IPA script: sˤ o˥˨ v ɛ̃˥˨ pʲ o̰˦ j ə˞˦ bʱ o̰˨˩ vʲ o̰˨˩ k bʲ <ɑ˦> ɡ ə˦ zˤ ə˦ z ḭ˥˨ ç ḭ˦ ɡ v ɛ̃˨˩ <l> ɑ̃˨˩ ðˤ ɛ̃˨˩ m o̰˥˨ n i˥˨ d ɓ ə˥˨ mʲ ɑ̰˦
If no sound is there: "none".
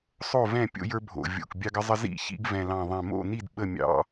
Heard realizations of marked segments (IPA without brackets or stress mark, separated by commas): ɑ˦, l